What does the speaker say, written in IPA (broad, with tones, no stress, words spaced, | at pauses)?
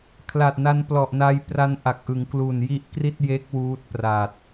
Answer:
kʰla˨˩t̚na˧n plɔ˨˩ʔna˧j pra˧nʔa˨˩k̚ʔɯ˩˦ŋklu˨˩n ji˦˥ʔkri˥˩t̚je˦˥k̚ wuː˦˥t̚pra˨˩t̚